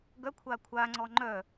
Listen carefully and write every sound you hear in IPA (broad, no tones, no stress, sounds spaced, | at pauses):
ɡ œ kʷʰ aː kʷʰ aː ŋ͡ǀ ɔː ŋ͡ǃ œ